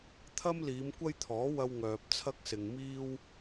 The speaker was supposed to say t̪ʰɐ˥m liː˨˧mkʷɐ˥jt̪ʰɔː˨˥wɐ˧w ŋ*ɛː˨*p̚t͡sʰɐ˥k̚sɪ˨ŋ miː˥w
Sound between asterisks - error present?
yes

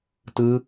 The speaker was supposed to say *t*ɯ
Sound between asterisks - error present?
no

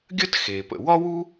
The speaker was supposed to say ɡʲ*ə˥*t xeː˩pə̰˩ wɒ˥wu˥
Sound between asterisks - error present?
no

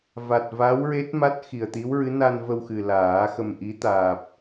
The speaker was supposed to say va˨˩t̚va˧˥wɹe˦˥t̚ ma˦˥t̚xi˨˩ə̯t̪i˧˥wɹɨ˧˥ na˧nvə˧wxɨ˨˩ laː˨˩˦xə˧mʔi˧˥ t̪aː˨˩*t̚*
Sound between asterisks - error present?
yes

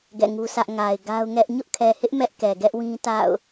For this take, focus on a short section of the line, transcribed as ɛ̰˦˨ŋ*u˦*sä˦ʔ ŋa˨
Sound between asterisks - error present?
no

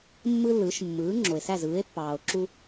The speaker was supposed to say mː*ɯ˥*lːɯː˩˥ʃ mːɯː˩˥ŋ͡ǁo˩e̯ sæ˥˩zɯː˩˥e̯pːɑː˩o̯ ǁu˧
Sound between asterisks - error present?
no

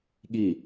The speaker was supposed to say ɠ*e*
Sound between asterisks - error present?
yes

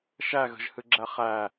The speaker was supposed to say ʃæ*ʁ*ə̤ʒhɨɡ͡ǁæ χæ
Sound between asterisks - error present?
yes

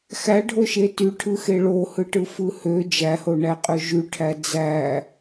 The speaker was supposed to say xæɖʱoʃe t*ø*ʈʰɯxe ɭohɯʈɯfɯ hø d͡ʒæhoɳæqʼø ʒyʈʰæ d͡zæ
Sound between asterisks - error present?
yes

